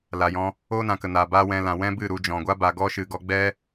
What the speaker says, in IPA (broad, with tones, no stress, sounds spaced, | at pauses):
l aː˨ j ɔ̃˧ | oː˦ n ã˨ k ə˨ n aː˨ b aː˦ w ɛ̃˧ l ã˨ w ɛ̃˦ b ɨ˦˨ ɾ u˧ d͡ʒ ɔ̃˨ ɡʷ a˦ b a˨ ɡ ɔ˦ ʃ ɨ˨ ɡ ɔ˧ ɡ͡b ɛ˦